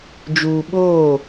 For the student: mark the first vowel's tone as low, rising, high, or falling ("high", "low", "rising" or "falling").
low